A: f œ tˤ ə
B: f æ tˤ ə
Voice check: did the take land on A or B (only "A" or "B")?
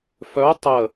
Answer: A